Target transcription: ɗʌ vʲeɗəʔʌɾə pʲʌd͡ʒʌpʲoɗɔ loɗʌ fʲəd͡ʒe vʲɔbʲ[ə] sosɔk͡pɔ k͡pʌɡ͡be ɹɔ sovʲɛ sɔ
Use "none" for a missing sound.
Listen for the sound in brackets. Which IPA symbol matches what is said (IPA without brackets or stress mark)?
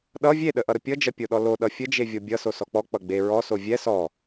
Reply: ʌ